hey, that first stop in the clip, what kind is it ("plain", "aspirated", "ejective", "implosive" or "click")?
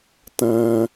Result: plain